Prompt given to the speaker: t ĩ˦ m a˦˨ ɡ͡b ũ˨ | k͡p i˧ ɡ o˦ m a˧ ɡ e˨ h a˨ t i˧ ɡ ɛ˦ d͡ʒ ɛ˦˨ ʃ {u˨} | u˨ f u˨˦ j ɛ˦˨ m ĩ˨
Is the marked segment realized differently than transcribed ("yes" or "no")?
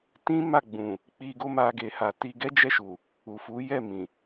no